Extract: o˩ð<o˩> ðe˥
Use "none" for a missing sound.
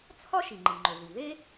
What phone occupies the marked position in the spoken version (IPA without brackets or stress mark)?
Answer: u˩